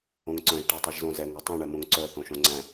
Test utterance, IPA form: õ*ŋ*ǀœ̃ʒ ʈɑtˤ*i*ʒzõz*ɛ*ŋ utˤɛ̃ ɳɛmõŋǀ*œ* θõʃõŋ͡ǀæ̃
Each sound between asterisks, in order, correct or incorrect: correct, correct, correct, correct

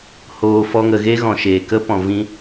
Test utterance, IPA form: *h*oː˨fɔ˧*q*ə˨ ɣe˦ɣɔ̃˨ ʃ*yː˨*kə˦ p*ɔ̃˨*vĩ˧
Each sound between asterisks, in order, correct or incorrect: correct, incorrect: ŋ, incorrect: eː˨, correct

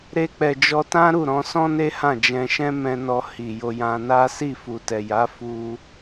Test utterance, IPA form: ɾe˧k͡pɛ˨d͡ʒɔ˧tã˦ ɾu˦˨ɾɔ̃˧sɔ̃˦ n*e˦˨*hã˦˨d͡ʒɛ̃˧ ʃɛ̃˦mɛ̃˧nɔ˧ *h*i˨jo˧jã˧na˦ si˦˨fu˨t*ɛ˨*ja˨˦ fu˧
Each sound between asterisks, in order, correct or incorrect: incorrect: e˦, correct, correct

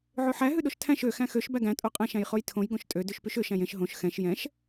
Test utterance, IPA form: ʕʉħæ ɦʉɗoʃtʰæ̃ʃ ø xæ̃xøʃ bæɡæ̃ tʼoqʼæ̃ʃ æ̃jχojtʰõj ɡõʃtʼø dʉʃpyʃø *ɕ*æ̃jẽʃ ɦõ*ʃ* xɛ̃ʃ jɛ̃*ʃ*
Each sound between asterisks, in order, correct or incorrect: incorrect: ʃ, correct, correct

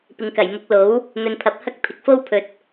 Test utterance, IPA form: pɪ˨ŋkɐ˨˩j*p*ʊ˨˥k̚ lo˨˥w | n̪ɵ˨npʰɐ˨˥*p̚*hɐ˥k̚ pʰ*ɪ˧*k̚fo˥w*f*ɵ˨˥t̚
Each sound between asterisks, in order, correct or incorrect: incorrect: m, correct, incorrect: ɪ˨˥, incorrect: pʰ

